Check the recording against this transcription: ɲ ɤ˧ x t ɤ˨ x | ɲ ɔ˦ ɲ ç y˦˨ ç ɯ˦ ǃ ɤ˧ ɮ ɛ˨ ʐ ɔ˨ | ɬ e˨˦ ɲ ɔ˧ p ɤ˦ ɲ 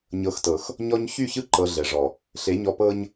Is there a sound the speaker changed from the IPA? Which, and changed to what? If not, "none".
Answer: none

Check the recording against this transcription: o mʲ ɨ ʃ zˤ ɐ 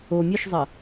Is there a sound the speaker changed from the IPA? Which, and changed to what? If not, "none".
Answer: none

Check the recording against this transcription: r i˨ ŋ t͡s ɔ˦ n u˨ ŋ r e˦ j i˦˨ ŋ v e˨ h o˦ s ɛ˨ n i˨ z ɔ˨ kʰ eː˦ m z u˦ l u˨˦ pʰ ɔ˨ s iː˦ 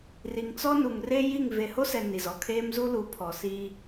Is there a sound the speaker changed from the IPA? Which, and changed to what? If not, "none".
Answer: none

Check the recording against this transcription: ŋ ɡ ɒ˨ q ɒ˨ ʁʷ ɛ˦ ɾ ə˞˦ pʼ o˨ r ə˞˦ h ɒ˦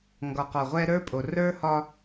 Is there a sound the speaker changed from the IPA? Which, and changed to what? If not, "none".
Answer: none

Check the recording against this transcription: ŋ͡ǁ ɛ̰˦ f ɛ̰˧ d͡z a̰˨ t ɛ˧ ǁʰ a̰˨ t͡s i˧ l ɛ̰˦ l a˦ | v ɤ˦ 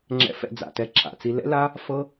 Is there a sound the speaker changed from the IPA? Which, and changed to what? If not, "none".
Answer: v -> f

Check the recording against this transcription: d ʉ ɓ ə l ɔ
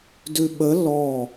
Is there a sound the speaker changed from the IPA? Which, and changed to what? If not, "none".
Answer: none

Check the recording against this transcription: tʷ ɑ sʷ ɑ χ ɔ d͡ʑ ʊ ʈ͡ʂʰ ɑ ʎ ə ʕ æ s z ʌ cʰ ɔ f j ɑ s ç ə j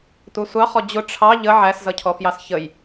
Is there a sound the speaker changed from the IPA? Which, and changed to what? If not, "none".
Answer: none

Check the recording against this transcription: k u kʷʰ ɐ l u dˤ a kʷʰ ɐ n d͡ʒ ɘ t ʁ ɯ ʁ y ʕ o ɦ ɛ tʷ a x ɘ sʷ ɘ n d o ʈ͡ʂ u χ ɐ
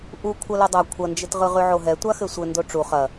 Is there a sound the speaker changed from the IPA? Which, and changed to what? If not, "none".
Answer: k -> ʔ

